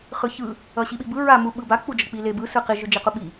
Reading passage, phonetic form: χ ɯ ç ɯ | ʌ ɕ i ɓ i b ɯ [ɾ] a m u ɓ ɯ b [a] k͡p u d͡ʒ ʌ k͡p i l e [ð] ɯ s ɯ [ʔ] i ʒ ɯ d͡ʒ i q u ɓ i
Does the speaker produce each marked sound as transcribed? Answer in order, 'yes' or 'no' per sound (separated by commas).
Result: no, yes, no, no